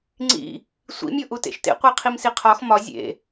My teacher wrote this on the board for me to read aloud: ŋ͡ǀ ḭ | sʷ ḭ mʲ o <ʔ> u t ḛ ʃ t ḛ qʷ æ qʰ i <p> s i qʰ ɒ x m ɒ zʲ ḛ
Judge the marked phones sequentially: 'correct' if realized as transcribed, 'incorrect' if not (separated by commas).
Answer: correct, incorrect